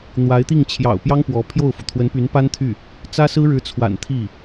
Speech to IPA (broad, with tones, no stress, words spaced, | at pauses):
n̪wa˧˥ɪ̯t̪i˥˩ŋ t͡ɕʰjɑ̰˨˩ʊ̯pjɑ˥ŋ pwɔ˧˥pʰjo˥˩ʊ̯fu˩ t̪ʰwə˧˥npy˧˥npa˥nt̪ʰy˥˩ | t͡sä˥sɹ̩˥ ɻɻ̩˧˥t͡sʰwa̰˨˩n t̪ʰi˥˩